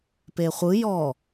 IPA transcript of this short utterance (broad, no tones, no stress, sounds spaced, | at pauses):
p e χʷ ɯ j ɔ